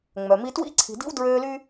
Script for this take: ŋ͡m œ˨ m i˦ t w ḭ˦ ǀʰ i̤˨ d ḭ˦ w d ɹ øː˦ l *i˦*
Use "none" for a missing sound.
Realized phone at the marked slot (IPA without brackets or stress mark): y˦